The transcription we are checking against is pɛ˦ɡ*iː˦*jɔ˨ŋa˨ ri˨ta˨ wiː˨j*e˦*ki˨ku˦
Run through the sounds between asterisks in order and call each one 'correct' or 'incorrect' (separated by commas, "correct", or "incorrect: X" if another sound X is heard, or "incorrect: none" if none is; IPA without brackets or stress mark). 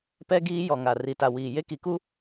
correct, correct